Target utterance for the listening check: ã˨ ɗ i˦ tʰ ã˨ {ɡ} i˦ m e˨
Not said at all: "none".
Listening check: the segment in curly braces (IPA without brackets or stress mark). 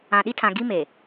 ɡ